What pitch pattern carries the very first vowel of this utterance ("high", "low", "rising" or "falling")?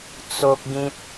high